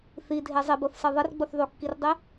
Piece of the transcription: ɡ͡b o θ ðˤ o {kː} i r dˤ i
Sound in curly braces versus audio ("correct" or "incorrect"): correct